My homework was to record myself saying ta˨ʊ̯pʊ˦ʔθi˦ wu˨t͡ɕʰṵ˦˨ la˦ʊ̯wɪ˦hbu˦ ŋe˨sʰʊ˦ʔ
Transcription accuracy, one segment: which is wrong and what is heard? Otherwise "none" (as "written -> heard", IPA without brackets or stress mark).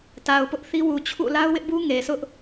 h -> ʔ